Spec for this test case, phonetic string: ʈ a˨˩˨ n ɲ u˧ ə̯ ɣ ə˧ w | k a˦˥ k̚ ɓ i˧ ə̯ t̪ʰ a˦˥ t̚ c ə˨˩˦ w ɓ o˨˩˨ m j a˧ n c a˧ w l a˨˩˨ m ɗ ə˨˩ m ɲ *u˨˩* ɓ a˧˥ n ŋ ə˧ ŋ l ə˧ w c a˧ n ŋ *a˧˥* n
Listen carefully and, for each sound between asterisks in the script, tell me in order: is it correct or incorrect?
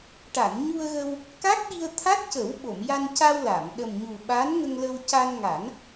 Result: correct, incorrect: a˨˩˦

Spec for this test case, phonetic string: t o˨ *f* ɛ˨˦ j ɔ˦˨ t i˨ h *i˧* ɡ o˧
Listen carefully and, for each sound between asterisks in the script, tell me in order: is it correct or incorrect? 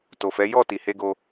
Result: correct, incorrect: e˧

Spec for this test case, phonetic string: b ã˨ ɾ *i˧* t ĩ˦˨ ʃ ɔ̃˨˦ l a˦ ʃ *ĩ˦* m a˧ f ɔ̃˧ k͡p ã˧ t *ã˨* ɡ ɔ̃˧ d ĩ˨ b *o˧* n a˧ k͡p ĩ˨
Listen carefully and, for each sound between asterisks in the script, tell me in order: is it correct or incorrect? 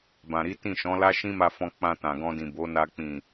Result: incorrect: i˨˦, correct, correct, incorrect: o˨˦

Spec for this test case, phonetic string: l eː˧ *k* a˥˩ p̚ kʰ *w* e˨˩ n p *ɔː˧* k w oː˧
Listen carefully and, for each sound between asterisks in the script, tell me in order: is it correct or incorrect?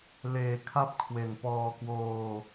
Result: incorrect: kʰ, correct, correct

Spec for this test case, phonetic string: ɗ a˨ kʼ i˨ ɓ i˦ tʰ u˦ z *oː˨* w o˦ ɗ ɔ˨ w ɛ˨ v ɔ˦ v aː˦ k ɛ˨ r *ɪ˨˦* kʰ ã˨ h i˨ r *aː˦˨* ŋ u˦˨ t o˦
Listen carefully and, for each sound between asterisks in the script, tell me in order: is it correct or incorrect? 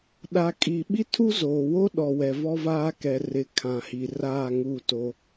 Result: correct, correct, correct

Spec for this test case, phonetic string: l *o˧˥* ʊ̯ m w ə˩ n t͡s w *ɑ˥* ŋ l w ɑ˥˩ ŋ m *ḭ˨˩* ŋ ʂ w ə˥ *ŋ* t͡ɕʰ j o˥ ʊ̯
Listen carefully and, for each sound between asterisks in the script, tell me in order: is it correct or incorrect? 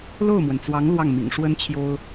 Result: incorrect: o˥˩, incorrect: ɑ˧˥, correct, incorrect: n

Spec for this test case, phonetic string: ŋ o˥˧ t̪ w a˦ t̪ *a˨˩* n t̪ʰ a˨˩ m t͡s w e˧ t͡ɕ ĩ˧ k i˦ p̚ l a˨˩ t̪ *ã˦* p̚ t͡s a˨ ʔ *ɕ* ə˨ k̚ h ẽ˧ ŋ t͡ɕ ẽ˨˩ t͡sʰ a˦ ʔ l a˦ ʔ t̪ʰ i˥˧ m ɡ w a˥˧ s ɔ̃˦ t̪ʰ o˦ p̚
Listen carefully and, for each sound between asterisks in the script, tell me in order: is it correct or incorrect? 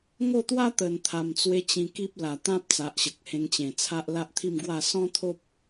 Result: incorrect: ə˨˩, correct, correct

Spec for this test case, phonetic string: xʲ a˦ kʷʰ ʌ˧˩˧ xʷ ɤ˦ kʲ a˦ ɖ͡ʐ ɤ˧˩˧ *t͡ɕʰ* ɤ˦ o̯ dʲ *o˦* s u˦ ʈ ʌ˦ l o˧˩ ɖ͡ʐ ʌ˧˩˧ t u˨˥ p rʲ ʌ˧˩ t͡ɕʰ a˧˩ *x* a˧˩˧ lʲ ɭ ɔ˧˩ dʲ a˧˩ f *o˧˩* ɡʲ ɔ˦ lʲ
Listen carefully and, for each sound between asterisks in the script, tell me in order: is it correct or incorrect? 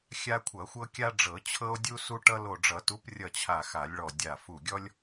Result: correct, incorrect: u˦, correct, incorrect: u˧˩

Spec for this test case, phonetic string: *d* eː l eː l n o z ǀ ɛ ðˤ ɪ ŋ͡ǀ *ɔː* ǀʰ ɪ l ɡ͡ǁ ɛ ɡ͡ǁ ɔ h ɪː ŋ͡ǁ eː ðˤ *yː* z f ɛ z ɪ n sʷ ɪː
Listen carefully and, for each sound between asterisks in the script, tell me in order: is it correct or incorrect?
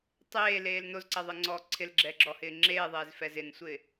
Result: incorrect: tˤ, correct, incorrect: eː

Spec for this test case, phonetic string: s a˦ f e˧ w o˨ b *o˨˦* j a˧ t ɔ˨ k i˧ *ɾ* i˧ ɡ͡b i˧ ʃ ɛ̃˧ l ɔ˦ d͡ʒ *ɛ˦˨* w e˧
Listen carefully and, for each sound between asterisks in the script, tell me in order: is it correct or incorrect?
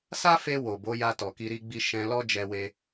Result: correct, correct, incorrect: ɛ˧

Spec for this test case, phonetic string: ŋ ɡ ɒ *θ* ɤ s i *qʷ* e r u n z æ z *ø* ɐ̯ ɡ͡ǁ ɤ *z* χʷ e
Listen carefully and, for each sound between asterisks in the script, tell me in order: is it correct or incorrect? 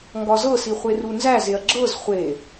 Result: incorrect: z, incorrect: χʷ, incorrect: e, correct

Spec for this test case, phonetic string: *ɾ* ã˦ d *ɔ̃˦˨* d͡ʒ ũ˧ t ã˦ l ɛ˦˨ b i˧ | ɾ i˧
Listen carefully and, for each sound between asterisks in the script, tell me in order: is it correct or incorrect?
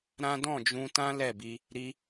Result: correct, correct

